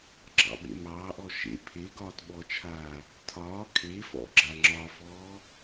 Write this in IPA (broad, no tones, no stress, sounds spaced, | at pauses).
ɡ͡ǁ ɑ̰ ɓ ḛ m ɑː ʔ ɔ ʃ ḛ pʰ e ɡ ɒː t ɓ ɔ t͡ʃʰ aː | tʰ ɒː kʰ e f ɔ̰ ɡ͡ǁ a ŋ͡ǁ ɒ f ɔː